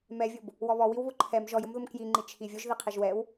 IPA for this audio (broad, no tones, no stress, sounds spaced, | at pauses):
m ɛ vʲ ʊ b | w ɔ β ɔ w i w β ʊ ǃʰ ɛ m ʒ ɔ j ʊ m ð ʊ m k j i ŋ͡ǃ i t͡ʃʰ i vʲ ʊ ʒ ð i qʰ i ʒ w ɛ w